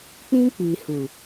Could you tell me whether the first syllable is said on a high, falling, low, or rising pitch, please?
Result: high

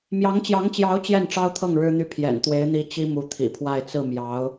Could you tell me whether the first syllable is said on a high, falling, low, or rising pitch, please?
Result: rising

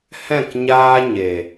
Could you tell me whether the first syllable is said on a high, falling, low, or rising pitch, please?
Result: falling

